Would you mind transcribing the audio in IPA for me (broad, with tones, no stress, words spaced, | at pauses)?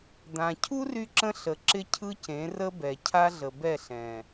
d̪ã˨ cʰu˦ry˧ǁə̃˧ ɬə˨ǁɪ˧ cʰɯ˦cẽ˨˦rə˦bɛ˨ cʰa˦ɮə˨bɛ˦˨ ɬɛ̃˨